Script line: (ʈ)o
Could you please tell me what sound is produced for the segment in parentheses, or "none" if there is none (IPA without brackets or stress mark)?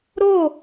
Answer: ɾ